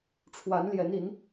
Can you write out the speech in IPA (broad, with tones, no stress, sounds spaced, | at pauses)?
ʈ͡ʂʰ w a˨˦ n l j ɛ˨˦ n i˨˦ n